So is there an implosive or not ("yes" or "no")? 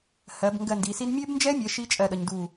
yes